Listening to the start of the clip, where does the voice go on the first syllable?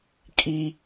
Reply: high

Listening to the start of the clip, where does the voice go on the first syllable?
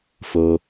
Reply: low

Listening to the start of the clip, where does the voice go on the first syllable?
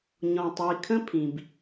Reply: low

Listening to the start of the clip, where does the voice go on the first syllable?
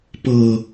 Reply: low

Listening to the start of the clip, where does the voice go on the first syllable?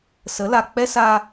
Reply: rising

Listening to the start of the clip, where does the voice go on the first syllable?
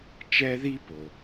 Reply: high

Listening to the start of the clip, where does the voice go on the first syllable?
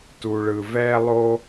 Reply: low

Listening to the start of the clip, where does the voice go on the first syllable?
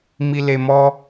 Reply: low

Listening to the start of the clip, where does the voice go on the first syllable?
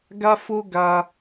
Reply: high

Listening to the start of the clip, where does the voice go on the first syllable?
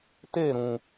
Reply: falling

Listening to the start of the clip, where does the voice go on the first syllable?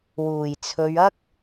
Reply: low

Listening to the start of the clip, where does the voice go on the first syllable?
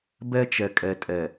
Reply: high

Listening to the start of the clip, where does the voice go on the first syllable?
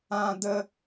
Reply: high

